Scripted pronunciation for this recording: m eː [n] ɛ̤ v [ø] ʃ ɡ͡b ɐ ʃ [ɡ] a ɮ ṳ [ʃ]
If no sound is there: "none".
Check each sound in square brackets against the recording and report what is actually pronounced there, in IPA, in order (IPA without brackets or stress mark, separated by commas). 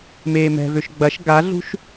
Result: m, ø, ɡ, ʃ